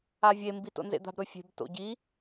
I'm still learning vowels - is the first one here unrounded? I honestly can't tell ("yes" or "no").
yes